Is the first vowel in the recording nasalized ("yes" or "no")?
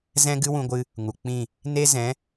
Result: yes